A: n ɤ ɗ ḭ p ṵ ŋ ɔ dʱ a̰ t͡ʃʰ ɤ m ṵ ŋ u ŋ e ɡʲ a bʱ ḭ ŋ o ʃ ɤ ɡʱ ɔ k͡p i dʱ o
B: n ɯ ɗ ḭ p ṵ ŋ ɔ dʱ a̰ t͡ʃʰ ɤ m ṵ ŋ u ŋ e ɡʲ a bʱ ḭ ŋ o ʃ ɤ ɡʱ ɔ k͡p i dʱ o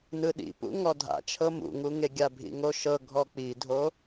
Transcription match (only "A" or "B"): B